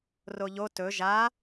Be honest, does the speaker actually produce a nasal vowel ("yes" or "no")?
no